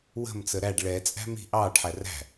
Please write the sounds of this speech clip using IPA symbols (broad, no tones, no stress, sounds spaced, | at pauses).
w ə̤ m t͡s ə ɾ æ ɖ ɭ ɛ t͡sʼ æ̤ m i̤ ʔ ɑː ɖ ħ æ r æ̤